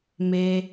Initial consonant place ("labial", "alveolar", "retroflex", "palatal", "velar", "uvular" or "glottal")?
labial